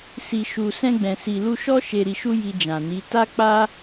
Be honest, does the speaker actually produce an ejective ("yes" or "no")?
no